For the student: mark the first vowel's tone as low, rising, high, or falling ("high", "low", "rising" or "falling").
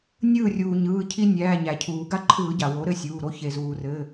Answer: falling